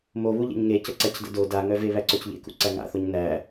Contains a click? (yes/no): yes